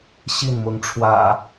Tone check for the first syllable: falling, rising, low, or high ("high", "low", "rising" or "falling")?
falling